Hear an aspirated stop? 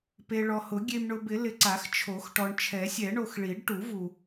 yes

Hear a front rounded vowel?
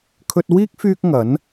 yes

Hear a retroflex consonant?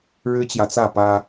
yes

